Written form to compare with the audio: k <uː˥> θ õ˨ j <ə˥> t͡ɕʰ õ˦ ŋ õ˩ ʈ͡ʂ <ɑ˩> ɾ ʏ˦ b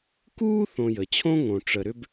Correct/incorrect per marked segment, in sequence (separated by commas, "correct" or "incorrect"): correct, incorrect, incorrect